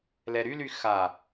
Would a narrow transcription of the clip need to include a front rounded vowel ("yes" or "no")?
yes